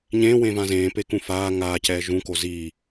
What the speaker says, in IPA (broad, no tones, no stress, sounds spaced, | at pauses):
ɲ ẽː w ẽː v ã z ẽː p e k ũ f aː ŋ aː c ɛː ʒ ũ k o z i